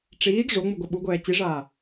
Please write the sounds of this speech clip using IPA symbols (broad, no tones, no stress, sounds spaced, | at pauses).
ʈ͡ʂ iː ɡ ʐ o ŋ͡m ɯ ɡʷ ɛ ɓ u ɡʷ ɛː t͡ɕ i ʐ aː